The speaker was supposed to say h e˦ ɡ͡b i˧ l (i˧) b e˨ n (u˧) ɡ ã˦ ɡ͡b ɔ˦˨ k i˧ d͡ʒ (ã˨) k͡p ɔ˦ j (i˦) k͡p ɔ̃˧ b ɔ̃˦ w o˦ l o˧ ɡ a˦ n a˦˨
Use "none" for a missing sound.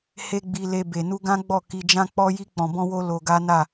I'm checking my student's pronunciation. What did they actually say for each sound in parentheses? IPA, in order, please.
e˧, u˧, ã˦, i˦

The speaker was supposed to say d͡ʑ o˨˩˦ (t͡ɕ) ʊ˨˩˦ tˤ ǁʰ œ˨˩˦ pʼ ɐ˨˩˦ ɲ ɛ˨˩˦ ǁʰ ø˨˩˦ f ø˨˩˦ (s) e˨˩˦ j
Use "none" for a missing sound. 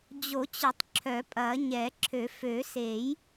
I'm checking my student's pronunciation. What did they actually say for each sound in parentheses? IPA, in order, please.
t͡ɕ, s

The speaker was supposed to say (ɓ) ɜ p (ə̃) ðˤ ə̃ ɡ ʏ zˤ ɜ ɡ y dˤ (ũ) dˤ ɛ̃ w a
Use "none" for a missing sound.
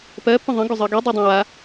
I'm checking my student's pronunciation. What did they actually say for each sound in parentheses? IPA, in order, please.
p, ə̃, u

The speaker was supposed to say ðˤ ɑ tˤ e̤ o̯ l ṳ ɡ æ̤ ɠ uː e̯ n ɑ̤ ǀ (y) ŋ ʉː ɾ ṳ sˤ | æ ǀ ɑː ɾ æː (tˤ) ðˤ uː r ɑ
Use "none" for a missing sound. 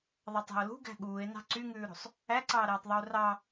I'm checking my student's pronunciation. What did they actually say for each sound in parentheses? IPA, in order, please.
y, tˤ

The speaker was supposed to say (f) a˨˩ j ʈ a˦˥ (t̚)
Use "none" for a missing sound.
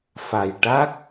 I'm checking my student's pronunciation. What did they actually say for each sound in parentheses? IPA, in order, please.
f, k̚

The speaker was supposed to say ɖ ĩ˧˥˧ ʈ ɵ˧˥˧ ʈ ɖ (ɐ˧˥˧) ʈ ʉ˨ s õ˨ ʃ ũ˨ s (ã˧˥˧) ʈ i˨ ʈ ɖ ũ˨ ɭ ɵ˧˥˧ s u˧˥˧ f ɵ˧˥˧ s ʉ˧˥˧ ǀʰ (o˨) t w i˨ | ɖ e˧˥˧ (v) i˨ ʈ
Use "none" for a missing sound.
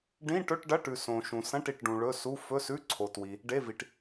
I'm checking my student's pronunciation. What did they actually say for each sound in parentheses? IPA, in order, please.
ɐ˧˥˧, ɐ̃˧˥˧, o˨, v

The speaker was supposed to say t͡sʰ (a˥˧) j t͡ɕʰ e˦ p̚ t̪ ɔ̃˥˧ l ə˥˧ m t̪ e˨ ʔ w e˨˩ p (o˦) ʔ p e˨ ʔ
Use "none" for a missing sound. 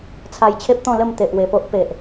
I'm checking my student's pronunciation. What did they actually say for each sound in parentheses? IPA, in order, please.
a˧, o˦

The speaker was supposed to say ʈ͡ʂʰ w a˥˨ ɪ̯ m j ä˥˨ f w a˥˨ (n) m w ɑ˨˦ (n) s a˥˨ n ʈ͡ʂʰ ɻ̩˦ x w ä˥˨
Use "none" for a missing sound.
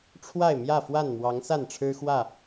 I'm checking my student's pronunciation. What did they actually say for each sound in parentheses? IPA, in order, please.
n, ŋ

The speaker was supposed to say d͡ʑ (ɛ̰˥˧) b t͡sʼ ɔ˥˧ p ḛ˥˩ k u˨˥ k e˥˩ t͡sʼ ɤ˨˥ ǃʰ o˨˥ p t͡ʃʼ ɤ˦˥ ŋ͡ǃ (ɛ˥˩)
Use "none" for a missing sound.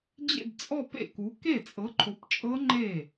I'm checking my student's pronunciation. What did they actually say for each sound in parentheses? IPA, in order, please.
ḛ˥˧, e˥˩

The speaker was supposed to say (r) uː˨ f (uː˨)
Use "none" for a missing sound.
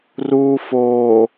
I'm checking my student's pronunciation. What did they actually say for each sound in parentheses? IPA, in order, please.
r, oː˨

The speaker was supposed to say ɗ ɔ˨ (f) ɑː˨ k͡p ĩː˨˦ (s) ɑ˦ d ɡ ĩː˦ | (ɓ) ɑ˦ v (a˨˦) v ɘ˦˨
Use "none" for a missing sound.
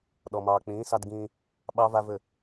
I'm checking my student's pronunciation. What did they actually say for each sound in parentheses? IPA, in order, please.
m, s, ɓ, a˦

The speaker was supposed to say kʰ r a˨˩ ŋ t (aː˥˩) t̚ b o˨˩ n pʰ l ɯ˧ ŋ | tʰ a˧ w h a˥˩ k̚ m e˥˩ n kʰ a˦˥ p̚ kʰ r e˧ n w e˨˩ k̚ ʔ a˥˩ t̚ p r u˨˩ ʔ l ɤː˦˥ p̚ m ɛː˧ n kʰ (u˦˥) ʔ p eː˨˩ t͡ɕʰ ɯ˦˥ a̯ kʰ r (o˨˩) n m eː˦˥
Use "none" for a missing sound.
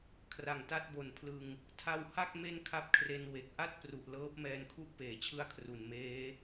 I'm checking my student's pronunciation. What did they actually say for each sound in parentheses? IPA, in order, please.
a˥˩, u˥˩, u˨˩

